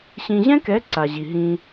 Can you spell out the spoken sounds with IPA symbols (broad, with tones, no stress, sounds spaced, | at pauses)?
ɕ ĩ˨ ʑ ɛ̃˦ k ɛ˨˦ ǀ a˨ ʑ i˨ ɦ ĩ˦